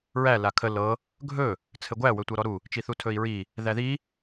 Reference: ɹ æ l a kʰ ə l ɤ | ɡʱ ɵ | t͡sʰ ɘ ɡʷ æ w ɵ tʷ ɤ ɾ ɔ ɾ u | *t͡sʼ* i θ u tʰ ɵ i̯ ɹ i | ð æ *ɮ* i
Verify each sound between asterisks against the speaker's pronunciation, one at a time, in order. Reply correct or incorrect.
incorrect, incorrect

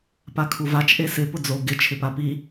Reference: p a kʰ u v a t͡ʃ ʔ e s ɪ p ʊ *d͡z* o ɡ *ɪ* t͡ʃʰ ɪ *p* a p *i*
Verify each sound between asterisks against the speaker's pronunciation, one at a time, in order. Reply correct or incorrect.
correct, correct, correct, correct

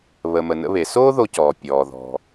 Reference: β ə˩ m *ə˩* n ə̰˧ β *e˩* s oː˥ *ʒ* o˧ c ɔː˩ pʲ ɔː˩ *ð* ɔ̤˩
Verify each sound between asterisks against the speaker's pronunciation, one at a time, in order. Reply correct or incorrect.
correct, correct, incorrect, correct

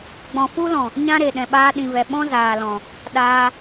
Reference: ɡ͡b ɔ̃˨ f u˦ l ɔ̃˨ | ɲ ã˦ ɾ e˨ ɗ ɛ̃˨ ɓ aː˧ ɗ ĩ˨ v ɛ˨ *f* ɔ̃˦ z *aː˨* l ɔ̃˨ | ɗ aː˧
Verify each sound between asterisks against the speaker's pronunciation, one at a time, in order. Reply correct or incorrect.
incorrect, correct

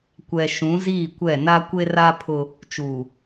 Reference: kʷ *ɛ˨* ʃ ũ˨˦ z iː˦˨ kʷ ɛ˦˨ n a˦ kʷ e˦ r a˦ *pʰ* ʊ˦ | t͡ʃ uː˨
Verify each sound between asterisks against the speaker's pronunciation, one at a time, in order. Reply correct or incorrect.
correct, correct

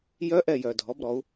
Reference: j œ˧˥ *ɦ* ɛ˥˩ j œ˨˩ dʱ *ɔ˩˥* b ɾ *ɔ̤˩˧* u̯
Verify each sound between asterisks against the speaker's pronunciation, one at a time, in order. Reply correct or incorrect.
incorrect, correct, incorrect

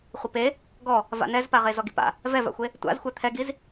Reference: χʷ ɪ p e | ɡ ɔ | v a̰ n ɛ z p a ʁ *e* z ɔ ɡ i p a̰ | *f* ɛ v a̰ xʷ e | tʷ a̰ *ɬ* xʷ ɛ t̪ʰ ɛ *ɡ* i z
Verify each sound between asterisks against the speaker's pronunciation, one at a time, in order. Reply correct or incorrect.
correct, incorrect, incorrect, correct

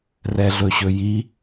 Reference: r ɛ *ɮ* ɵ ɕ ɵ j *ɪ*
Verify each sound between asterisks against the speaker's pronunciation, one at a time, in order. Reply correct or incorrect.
correct, incorrect

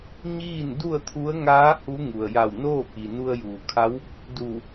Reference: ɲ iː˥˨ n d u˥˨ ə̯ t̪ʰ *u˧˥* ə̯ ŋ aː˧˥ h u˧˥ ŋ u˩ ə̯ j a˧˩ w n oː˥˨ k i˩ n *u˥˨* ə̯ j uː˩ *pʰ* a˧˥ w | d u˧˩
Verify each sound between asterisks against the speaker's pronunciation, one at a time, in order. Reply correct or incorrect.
correct, incorrect, incorrect

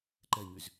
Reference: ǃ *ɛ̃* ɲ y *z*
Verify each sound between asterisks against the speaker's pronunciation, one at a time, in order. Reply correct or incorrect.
incorrect, correct

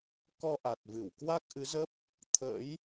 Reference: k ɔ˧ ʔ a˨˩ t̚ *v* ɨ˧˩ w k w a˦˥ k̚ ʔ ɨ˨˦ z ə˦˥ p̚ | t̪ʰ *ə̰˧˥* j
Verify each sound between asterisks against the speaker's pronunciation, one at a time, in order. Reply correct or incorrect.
correct, correct

